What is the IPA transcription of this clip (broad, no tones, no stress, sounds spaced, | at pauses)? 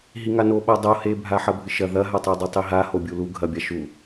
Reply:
ɦ i ŋ a n o ɓ a dˤ o h e bʱ a ħ ɐ bʱ ɨ ʃ ɐ ð ɐ ɦ a tˤ ɵ dˤ ɵ tˤ i ɦ a h o bʲ u l u ɡʱ ɐ bʲ a ʃ u